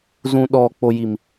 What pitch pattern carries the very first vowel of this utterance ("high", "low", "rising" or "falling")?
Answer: low